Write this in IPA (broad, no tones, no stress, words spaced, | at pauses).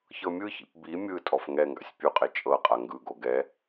çɤmʲɯçḭp bi mʲɯ tʼɔfŋɛŋɡa̰sʲ pʲuqʼe t͡ʃʼɤqʼa ŋɡɯɡo ɡɛ